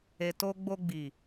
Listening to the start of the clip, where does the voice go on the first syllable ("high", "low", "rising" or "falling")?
low